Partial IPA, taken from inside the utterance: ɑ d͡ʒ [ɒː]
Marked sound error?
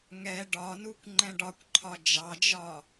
no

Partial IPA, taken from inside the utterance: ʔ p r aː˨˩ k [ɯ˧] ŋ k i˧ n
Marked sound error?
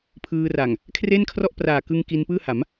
no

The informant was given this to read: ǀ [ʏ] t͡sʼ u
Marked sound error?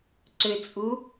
no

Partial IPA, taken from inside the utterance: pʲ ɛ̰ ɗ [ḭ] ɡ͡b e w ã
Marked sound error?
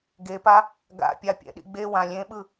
no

